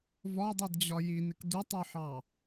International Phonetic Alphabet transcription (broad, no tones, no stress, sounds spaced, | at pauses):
v ɒ dˤ i d d͡ʑ ɒ j i n ɪ k d u tˤ u ħ ɑ